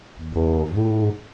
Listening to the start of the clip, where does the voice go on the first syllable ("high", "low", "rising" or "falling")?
low